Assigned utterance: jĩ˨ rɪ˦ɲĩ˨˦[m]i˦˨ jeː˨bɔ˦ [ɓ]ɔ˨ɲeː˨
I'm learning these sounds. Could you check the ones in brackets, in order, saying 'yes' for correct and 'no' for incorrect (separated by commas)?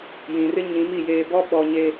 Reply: yes, yes